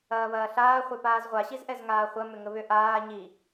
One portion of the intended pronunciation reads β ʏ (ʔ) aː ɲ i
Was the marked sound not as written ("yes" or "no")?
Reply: no